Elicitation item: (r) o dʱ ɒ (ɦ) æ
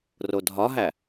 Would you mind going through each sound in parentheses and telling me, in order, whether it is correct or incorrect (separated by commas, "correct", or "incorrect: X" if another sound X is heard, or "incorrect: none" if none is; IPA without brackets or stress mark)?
correct, correct